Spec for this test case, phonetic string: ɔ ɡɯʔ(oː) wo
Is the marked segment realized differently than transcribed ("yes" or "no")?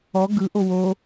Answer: yes